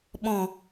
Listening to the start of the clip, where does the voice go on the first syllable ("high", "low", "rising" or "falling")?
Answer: low